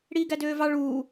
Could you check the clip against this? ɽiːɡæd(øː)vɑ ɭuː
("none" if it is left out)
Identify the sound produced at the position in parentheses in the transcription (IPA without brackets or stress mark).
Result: øː